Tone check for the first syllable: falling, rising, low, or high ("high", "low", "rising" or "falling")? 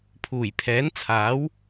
low